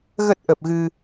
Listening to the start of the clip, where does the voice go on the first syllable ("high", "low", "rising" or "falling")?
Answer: low